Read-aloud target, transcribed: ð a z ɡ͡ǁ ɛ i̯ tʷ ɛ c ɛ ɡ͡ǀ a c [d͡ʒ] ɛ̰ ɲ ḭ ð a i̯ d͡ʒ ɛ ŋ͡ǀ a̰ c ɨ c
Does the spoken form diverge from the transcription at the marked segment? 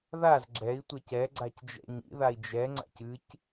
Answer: no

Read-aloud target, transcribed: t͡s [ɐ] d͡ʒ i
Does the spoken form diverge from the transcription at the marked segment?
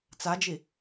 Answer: yes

